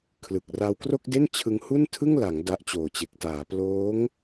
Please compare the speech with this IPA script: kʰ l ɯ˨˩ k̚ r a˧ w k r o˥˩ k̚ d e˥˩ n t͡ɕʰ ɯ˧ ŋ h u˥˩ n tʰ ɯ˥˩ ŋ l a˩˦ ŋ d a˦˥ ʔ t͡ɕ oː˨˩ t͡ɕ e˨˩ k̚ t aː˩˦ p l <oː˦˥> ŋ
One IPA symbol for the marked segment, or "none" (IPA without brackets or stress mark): oː˦˥